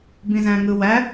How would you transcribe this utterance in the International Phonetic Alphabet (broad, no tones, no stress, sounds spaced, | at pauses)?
b ĩ z æ̃ ŋ ɯ w æ